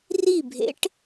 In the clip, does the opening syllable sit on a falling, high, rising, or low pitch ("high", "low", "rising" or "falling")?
falling